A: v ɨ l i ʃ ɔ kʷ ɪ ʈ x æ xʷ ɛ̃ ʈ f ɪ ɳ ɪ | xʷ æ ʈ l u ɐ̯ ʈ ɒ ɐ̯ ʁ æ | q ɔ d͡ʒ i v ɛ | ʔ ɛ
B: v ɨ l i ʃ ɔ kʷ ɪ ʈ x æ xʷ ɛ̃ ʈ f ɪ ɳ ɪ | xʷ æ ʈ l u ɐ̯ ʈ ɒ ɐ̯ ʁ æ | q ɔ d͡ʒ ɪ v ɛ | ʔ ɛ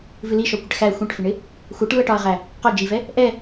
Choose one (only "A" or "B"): A